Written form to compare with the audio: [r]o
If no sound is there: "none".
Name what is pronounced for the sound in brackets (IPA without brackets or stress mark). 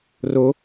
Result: r